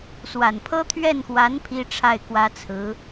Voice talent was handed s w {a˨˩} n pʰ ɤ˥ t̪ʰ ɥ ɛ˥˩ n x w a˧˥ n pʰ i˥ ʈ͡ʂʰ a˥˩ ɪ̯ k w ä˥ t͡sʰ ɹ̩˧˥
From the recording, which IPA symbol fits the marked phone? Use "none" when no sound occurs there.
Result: a˨˩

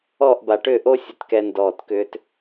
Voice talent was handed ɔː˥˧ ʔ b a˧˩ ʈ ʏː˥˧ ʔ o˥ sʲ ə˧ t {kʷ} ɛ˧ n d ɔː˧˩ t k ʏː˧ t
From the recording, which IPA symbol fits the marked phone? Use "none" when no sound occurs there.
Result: k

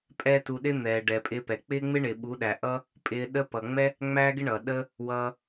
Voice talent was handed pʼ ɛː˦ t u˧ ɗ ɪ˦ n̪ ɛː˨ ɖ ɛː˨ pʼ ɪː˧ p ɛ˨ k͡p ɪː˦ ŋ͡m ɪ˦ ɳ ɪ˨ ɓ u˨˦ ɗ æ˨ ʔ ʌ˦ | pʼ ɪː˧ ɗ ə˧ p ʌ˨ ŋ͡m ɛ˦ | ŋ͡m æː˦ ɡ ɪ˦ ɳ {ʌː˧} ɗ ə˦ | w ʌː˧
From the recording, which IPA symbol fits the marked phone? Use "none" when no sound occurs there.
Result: ʌː˨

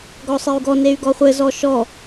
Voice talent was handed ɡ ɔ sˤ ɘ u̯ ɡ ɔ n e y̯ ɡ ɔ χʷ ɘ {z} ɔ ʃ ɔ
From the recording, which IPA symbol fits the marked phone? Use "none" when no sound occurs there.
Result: z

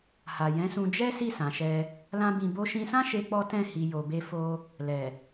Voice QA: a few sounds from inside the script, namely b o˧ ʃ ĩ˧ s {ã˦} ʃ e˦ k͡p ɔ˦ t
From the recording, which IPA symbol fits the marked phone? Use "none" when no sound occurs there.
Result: ã˦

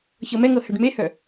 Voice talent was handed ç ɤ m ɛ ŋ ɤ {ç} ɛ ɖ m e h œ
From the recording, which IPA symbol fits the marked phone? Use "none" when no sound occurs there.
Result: h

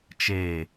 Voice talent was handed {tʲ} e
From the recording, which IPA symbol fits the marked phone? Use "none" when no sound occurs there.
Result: t͡ʃ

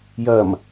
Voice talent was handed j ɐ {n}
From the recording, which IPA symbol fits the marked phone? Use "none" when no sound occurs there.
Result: m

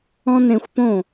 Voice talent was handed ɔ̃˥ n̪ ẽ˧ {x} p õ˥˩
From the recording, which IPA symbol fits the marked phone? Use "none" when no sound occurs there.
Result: xʷ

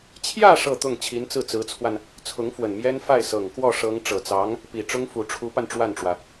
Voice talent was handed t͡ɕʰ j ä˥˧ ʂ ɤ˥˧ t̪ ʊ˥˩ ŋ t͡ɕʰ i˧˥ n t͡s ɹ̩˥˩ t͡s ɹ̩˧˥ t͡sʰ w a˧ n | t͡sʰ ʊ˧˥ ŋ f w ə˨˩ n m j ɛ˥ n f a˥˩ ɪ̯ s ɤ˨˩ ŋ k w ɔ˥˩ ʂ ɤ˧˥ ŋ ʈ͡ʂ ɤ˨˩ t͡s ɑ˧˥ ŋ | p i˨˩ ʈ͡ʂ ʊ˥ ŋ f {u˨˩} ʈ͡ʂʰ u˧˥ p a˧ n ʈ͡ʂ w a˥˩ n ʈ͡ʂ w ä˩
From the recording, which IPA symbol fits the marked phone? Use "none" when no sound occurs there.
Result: u˨˩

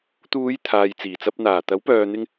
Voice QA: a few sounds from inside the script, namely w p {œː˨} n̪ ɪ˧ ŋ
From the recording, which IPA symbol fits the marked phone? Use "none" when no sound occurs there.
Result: œː˨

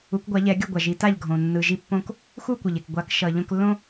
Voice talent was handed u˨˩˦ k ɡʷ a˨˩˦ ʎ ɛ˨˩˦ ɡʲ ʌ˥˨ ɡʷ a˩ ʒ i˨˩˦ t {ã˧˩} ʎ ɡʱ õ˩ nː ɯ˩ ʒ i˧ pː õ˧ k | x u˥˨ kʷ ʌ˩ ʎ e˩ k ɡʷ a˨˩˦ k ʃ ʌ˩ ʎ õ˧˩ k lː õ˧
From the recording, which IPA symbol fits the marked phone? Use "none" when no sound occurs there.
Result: a˧˩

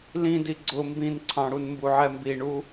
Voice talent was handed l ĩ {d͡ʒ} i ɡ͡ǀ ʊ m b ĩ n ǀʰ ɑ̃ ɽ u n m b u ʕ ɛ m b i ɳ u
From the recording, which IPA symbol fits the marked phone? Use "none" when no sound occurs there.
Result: d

